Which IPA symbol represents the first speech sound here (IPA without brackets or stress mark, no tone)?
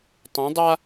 tˤ